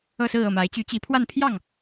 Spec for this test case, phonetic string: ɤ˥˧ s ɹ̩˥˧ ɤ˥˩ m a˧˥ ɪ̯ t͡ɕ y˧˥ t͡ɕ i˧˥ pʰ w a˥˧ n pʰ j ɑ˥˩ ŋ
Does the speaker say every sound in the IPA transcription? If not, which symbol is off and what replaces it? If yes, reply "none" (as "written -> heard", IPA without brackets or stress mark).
none